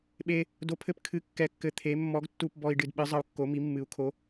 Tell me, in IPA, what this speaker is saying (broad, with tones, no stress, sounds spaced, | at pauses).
ɓ e˧ | d o˨˥ pʰ ɘ˧ p kʰ ɨ˨˥ kː ɛ˧ kː ɘ˧ t̪ʰ e˨˥ mː ɔ˨˥ ɡ tː u˧ p b ɔ˧ i̯ ɖ ɨ˧ d ɓ ɨ˨˥ zˤ ɐ˧ u̯ kː o˨˥ m i˨˥ mː ɨ˨˥ u̯ kʰ o˨˥